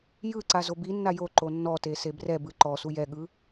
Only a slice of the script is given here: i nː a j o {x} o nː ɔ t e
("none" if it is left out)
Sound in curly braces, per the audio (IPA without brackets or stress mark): ǃ